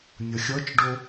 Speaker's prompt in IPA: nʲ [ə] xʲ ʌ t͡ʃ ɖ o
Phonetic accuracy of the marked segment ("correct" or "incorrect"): incorrect